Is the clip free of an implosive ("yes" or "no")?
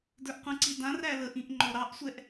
yes